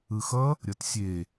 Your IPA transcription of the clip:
ɯ x ʌ | ɾʲ ʌ t sʲ e

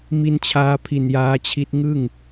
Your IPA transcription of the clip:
m i˧ n t͡ɕʰ aː˧ pʰ i˨˩ n j aː˦˥ t͡ɕʰ i˦˥ t̚ ŋ ɯ˥˩ ŋ

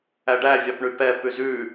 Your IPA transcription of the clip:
æ ɖ æ vʲ ɑ p ɳ y p ɛ p ʉ z ʉ

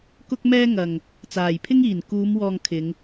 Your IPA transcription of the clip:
k ʊ˥ k̚ m ɛː˥ ŋ ɐ˨ ŋ | t͡s aː˨˩ j pʰ ɪ˥ ŋ iː˨˩ n k uː˨˧ m w ɔː˨ ŋ kʰ ɪ˨˧ ŋ

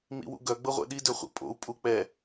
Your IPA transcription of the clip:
m ḭ w ṵ ɡ œ ɡ͡b ɤ ʁʷ ɛ̰ ɗ i d ɵ χʷ ḭ pʼ o̰ u̯ pʼ u k͡p ɛ

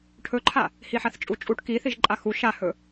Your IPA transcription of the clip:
ʈʰ ɵ ǃʰ a | h i ħ a θ t͡ʃʼ u t͡ʃʼ u ʈ k i θ i ʒ ǃʼ a x u ʃ a h ɵ

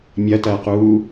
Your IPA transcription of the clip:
mʲ ɐ t ɐː q uː

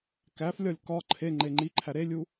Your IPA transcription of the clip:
k æ f lʲ ɒ lʲ k ɒ ǃʰ e ŋ͡ǃ e ŋ͡ǃ i ǃʰ æ ɾ e lʲ u

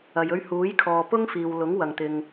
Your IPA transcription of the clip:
ɐ˨ j ɵ˧ ɥ h uː˨˥ j kʰ ɔː˨ p ʊ˥ ŋ f iː˨ w l ʊ˨˥ ŋ w ɐ˨ ŋ t̪ ɪ˨ ŋ

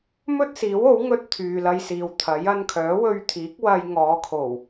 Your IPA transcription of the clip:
m ɵ˥ t̚ s iː˨˥ w o˨˥ w ŋ ɵ˥ t̚ t̪ʰ yː˨ l ɐ˧ j s iː˨ w t̪ʰ ɐ˨˥ j ɐ˧ n kʰ œː˨˥ w ɵ˧ ɥ t̪ʰ iː˨˥ k̚ w ɐ˧ j ŋ ɔː˨˧ kʰ o˨˩ w

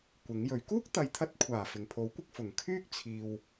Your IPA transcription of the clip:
kʷ ɪ˨˥ ŋ j ɵ˨˥ ɥ k uː˥ k̚ t̪ ɐ˨˧ j t̪ʰ ɐ˧ t̚ kʷʰ aː˨˩ f ɪ˨˩ ŋ pʰ o˨˥ w kʷ ɪ˧ k̚ f ʊ˨˩ ŋ kʰ yː˥ k̚ t͡sʰ iː˨ w

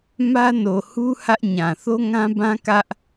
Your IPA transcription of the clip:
m ä˦ n o˨ h u˦ h ä˦ ʔ ɲ ã˨ θ o˦ ŋ ã˦ b ã˦ k ä˦ ʔ

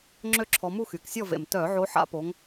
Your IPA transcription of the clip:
ŋ͡ǁ ø˥˨ ǁʰ ɔ˨˦ m u˥˨ x y˨˩ k sʲ ɔ˥˨ v ḛ˨˩ m t œ˧˩˧ ʕ o˨˦ ħ a̰˨˦ p o˨˦ ŋ

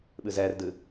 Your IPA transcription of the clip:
ɓ ɨ z ɛ r d ɨ

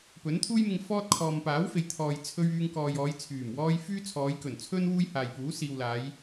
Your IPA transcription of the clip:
p ɵ˨˥ n t̪ʰ uː˥ j m ɪ˧ ŋ f ɔː˥ t̚ kʰ ɔː˨ m p aː˨˥ w f e˨ j t̪ʰ ɔː˨ j t͡sʰ ɵ˥ ɥ yː˧ ŋ k ɔː˨ j ɔː˨˧ j t͡sʰ yː˨˩ m w ɔː˥ j f yː˥ t͡sʰ ɔː˨˧ j k ɵ˨˩ n t͡sʰ ɵ˥ n w uː˥ j h aː˨ j p uː˨˥ s iː˨ w l aː˨˧ j

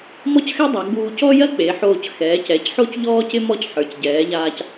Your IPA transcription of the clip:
m ɔ˥ c x ɛ˥ dˤ a˩˧ ɡ͡b uː˧ c ɔ˥ j ɜ˥ k͡p e˩˧ ħ oː˧˩ c x ɛː˩˧ c ɛ˩˧ c ħ o˥ c ʎ ɔː˥ c ɪ˥ m ɔ˥˧ c ħ ə˞˩˧ c ɟ ɛː˩˧ ʎ aː˧ c

